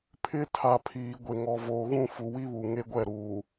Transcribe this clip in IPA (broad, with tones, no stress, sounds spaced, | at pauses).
pʰ ɪ˦ tʰ a˨ pʰ iː˨ ɡʷ e˨ ŋ ɔ˨ v oː˨ ɣ ũ˦˨ f u˨ w i˦ β u˨ ŋ e˦ ɡʷ ɛ˦˨ ɾ uː˨